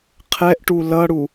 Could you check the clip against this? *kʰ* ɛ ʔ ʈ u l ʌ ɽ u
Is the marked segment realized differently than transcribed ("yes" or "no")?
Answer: yes